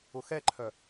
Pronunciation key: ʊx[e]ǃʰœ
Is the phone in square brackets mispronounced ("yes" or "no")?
yes